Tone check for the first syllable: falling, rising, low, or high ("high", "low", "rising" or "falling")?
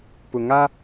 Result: low